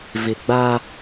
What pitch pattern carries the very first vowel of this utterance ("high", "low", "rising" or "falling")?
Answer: low